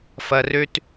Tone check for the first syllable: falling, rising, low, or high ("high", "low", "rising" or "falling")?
low